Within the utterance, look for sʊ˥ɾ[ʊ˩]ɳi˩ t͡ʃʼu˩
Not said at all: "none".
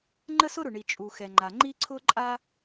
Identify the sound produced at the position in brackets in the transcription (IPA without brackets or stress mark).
ʊ˩